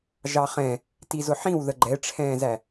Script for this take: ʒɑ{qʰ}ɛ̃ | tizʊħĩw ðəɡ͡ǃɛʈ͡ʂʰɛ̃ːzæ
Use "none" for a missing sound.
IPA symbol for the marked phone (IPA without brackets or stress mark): χ